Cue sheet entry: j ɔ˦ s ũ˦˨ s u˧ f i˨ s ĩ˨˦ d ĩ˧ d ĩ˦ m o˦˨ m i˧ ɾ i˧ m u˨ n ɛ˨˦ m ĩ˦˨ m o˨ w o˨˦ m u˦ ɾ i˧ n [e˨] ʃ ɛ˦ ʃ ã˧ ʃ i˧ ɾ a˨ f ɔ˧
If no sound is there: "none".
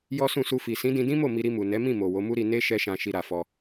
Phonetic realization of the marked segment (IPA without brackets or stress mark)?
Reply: e˦